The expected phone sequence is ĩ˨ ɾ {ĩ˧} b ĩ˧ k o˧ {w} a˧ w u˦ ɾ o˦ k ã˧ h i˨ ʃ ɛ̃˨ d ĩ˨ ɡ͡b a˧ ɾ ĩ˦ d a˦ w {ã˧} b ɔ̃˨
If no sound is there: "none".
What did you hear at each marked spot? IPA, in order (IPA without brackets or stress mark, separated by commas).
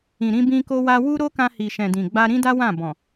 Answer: ĩ˧, w, ã˦˨